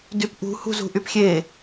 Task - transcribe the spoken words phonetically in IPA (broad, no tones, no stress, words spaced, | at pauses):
dypʔṳ hṳzṳʔypxʲe